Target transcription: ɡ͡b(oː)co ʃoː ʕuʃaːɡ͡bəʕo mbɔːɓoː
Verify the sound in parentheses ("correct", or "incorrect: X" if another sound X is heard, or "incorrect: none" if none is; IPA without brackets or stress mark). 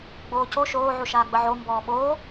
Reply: correct